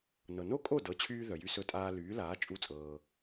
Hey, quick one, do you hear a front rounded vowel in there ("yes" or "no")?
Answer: yes